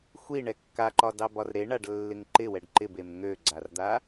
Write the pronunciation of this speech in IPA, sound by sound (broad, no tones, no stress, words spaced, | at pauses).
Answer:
xʷiɳɛ kːaǃɒdɑbɒr ɾeɳaɖlːɪŋ ǃɪwɛɖ ǃɪbem ŋøɡ͡ǀard̪a